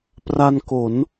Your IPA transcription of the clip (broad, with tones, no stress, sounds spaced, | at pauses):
p r a˧ n k o˩˦ n